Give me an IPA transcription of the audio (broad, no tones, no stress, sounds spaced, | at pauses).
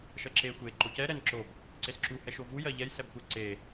ʃ ɜ ǁ e xʷ e ǃ o c ɛ ɾ ɛ n ǁ o b | ǀ e s ǁ u h ɛ ʃ o v u j ɜ ʎ ɛ j s ɛ b kʷ ɛ ǀ e